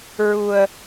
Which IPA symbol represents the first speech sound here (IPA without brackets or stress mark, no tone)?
ɹ